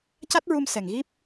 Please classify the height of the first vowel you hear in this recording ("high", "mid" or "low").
low